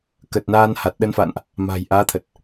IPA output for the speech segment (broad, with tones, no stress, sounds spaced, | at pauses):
k ə˨˩ t̚ n aː˧ n h a˨˩ t̚ ɗ ə˧ n f a̰ː˧˨ n ʔ | m a̤˨˩ j ʔ aː˨˦ t̪ʰ ə˨˩ t̚